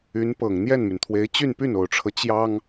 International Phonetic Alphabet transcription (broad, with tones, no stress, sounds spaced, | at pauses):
y˧˥ n p ɤ˨˩ ŋ n̪ j ɛ˥˩ n m y˩ n t̪ʰ w e˧˥ ɪ̯ t͡ɕ y˥˧ n p y˥˩ n o˨˩ ʊ̯ ʈ͡ʂʰ ɤ˦ t͡ɕ j ɑ˥ ŋ